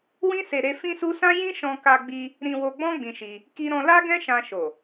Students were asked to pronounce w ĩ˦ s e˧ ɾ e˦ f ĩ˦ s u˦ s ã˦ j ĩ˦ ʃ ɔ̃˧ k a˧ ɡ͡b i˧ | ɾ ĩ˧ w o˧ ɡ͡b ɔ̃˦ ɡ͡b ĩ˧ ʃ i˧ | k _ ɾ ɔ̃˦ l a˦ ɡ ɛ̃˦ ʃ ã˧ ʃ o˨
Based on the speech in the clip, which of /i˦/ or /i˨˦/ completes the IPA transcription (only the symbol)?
i˦